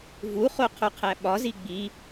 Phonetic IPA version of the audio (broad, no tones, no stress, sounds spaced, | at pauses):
v u χ o qʰ o qʰ æ ɓ ɒ z i ɡ͡b i